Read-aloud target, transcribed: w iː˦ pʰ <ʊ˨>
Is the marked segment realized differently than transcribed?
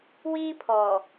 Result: yes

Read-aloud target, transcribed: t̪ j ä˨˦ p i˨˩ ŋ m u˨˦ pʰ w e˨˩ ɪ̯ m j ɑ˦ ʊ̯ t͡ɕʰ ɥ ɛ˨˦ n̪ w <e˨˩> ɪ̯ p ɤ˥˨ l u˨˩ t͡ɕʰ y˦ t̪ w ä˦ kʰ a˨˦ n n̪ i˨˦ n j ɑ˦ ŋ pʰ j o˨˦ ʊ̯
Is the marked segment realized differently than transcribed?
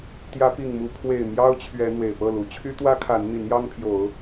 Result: no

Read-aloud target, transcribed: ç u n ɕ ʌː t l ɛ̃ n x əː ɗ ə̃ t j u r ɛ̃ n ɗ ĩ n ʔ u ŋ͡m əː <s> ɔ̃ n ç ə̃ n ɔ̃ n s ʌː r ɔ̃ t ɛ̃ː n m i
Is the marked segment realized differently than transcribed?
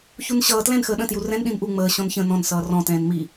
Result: yes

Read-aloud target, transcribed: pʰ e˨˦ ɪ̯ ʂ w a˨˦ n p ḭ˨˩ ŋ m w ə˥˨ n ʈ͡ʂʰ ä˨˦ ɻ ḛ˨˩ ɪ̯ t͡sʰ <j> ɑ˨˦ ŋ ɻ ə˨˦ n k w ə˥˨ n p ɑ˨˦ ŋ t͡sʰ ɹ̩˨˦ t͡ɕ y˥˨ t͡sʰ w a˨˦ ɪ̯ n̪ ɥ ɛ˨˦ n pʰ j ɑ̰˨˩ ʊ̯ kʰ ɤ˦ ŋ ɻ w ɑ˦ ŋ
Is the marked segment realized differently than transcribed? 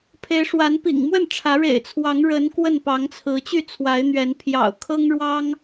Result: yes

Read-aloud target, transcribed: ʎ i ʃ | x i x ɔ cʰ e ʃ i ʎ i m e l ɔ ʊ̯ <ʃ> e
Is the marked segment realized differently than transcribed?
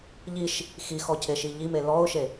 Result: no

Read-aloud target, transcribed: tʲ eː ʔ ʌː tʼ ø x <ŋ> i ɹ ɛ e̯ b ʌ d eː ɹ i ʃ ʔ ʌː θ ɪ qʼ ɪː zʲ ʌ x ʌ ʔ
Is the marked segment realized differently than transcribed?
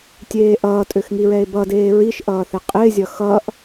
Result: no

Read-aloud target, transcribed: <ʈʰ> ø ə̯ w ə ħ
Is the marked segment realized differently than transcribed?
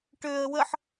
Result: yes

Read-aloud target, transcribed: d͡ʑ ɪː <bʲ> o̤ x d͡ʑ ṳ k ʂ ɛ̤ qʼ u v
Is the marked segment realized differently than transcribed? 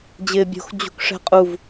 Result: no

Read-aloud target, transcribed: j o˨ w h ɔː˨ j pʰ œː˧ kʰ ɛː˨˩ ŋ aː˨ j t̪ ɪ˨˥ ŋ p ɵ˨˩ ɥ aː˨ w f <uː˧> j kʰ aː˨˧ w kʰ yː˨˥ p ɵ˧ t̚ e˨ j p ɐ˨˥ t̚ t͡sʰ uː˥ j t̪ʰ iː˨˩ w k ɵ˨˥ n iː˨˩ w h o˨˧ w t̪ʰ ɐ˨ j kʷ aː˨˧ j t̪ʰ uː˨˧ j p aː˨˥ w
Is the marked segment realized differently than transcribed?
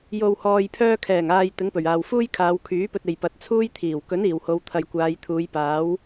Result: yes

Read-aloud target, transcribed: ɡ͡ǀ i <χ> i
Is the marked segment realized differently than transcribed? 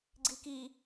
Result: yes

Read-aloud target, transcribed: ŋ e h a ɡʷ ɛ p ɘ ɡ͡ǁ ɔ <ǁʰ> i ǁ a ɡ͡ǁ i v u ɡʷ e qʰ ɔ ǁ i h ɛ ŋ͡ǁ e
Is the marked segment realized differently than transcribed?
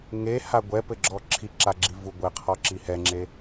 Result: no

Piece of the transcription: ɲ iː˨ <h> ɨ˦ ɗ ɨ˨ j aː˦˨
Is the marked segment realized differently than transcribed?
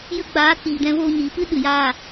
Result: yes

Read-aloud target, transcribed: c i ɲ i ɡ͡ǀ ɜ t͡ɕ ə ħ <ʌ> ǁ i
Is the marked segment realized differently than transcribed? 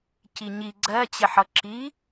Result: no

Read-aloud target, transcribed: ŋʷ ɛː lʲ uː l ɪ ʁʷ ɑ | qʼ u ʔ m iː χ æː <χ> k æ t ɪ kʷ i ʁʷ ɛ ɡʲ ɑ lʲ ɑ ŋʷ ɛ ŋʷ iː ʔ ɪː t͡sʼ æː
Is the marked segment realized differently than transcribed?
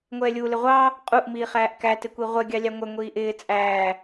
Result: yes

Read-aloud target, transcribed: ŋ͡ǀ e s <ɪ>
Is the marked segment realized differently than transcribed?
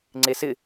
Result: no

